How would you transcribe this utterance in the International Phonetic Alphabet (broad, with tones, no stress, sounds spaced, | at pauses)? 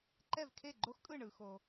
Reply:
ǃ ɛ˦˨ v kʰ e˦˨ ɡ͡ǃ o˦ x kʼ ɯ˦˨ ɳ ɯ˨ x o˨